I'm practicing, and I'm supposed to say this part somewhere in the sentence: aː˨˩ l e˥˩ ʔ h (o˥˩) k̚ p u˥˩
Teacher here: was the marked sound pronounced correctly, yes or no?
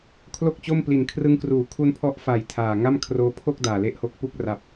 no